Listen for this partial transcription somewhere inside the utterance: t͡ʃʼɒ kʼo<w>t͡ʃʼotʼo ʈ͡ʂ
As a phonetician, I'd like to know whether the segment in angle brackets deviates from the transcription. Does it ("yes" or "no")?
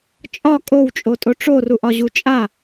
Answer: no